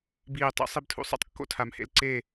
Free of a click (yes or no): no